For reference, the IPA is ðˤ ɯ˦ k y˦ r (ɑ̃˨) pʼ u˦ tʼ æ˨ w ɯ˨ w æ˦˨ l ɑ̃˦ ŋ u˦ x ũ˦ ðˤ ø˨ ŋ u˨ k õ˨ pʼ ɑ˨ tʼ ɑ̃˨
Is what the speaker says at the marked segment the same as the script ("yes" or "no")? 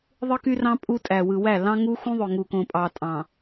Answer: no